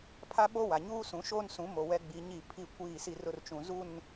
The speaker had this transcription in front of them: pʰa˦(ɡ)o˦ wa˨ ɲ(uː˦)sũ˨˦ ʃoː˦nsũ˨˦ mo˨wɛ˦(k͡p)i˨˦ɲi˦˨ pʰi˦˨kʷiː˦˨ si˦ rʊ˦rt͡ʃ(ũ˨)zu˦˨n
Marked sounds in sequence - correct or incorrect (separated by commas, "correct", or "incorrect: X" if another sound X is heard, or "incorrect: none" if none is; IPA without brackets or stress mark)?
incorrect: ɓ, correct, incorrect: ɡ͡b, correct